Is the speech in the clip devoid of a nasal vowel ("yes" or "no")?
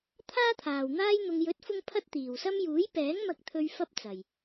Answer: yes